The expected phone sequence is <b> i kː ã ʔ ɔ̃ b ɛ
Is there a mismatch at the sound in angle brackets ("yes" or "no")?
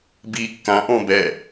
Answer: no